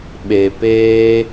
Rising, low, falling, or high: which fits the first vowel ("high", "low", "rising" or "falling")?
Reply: low